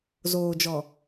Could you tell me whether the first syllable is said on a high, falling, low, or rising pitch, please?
low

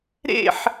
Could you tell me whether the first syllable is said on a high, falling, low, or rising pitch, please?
falling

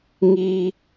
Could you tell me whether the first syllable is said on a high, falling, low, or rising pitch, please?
high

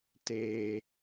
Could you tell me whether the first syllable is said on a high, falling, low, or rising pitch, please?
low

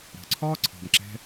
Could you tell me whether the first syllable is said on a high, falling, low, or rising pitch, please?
low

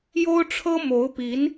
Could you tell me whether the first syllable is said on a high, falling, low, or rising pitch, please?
high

